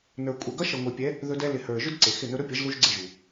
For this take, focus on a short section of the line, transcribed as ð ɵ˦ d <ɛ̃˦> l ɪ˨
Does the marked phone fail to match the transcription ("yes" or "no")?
yes